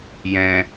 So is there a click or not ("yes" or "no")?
no